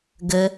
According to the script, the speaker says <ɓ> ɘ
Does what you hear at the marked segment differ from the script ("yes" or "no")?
yes